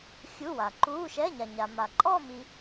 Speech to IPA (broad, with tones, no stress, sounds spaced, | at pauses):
xʲ u˧˥˧ w a˨ ǃ uː˧˥˧ ʃ ɛ˧˥˧ ɲ a˨ ɲ a˨ m a˨ ǃʼ ɔ˥˧ m i˦˥